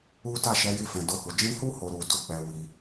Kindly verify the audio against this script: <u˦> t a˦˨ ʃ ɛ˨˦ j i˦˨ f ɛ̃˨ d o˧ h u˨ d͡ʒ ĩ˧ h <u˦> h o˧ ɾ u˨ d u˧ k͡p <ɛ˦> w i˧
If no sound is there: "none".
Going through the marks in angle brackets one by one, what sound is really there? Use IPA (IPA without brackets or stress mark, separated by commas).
u˦, u˦, ɛ˧